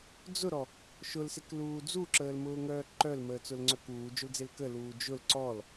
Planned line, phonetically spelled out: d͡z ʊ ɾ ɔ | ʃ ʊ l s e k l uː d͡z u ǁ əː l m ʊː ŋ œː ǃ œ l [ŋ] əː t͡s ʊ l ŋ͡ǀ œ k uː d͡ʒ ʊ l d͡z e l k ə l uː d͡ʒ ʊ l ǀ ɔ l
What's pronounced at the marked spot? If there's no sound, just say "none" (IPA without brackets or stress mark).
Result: m